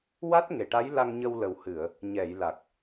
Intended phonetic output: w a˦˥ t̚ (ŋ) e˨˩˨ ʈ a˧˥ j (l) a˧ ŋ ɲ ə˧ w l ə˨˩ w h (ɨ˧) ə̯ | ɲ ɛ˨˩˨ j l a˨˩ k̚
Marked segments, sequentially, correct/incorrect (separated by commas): correct, correct, incorrect